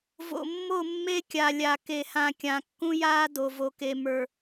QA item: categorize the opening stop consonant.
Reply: plain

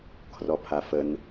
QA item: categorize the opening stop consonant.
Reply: aspirated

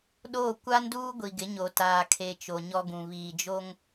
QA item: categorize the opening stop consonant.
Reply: implosive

